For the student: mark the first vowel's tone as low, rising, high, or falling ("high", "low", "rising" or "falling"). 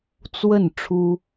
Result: falling